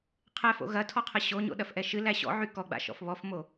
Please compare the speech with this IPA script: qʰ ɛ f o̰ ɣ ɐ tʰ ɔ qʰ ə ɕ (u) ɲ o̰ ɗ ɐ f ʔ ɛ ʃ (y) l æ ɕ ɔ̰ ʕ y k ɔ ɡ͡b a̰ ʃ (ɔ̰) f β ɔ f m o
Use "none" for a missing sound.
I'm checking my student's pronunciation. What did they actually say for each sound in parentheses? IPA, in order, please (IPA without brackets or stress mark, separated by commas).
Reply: o, ɨ, ɔ̰